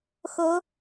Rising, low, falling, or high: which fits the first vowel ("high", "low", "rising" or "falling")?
rising